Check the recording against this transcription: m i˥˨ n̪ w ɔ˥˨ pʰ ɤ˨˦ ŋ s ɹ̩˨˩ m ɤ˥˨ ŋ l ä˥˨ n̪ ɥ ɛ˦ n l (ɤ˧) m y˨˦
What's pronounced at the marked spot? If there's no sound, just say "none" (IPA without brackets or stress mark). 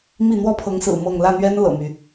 ɤ̰˨˩